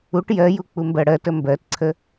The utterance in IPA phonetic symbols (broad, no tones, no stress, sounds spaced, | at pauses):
u ʈ j ɜ j u k͡p u m b ɜ ɽ ɜ t ə m b ɜ t ǀʰ ə